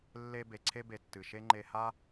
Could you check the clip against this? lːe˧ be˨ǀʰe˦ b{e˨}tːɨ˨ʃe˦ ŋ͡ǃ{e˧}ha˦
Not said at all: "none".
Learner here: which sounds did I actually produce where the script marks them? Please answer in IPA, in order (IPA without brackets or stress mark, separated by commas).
e˨, e˧